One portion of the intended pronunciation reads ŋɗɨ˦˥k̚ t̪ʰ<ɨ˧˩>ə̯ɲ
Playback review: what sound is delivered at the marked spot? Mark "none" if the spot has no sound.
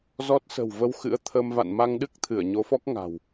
ɨ˧˩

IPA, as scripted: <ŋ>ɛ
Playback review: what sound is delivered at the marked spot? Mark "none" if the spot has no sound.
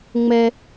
ŋ͡m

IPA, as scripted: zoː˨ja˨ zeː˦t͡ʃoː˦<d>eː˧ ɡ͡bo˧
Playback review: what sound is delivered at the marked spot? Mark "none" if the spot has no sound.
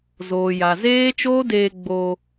d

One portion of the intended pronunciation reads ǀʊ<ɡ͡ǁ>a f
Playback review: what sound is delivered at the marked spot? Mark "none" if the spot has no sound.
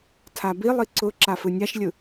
ǁ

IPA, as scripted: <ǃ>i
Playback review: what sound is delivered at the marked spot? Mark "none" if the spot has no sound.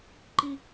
ǃ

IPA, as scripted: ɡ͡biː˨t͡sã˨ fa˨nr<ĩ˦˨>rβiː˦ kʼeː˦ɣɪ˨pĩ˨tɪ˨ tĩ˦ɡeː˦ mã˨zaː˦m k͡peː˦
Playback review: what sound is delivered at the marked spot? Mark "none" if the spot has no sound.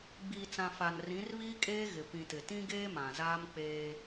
ĩ˨˦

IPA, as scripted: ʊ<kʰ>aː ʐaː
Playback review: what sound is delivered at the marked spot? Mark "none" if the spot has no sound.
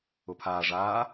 pʰ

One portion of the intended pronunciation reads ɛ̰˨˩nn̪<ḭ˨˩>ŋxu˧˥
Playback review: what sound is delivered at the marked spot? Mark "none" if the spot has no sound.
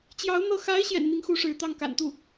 i˧˥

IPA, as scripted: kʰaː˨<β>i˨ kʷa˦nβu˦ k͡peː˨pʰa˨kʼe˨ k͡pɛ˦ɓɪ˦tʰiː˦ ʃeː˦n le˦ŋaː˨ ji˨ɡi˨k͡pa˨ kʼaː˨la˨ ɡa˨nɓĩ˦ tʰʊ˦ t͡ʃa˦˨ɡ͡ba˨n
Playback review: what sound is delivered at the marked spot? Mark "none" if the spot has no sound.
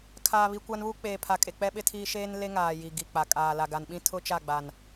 β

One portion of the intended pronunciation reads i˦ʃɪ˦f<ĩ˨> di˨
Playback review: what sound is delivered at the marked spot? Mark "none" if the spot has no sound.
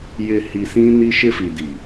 i˨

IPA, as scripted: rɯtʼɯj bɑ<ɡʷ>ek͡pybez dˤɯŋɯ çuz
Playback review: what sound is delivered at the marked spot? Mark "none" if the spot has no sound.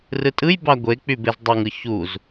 ɡʷ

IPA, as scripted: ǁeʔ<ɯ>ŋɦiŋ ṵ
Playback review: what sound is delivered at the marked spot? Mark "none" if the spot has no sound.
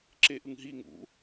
ɯ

